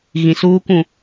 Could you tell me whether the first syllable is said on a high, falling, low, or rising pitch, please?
low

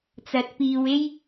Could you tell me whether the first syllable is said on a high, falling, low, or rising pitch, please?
rising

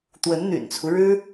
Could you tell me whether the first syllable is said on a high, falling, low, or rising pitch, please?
rising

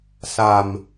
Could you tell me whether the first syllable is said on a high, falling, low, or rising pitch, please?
low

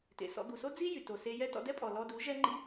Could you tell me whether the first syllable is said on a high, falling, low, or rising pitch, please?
low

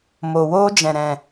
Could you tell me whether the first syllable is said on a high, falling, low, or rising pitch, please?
low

